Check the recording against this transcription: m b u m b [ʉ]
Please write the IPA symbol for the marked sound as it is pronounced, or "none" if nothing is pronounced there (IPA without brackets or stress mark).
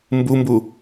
u